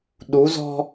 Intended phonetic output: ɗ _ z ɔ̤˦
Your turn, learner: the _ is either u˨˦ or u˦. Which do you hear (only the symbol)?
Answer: u˨˦